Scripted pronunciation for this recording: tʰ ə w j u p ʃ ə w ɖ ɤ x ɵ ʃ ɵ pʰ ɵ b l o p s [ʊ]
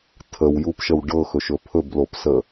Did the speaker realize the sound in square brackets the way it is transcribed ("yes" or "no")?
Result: no